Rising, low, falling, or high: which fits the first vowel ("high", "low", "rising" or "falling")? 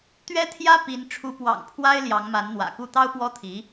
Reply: high